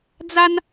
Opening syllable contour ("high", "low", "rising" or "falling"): high